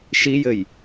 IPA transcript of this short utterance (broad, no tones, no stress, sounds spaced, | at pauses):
ʃ i j ɘ j